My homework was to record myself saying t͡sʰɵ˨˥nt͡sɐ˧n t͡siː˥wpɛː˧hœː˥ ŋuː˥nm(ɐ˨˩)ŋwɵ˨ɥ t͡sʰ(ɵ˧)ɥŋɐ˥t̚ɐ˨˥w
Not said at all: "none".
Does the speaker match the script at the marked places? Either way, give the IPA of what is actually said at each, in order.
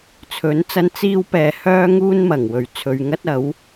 ɐ˨˩, ɵ˨˧

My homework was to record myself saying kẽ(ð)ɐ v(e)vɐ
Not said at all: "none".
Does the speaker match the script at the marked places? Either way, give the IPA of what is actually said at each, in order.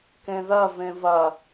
ð, ẽ

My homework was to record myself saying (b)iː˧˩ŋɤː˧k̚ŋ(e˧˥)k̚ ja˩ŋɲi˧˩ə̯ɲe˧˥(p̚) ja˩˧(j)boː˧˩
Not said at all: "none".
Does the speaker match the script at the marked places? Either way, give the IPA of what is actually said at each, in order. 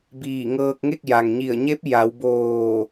b, e˥˨, p̚, w

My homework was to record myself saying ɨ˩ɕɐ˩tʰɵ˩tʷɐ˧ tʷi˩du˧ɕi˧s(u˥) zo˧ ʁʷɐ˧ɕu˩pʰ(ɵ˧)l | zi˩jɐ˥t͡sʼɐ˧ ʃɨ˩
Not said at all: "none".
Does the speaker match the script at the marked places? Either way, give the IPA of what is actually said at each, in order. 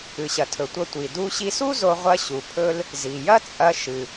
u˥, ɵ˧

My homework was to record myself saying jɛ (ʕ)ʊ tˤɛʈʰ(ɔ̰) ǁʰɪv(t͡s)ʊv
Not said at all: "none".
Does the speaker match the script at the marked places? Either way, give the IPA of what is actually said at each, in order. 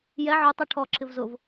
ʕ, ɔ, z

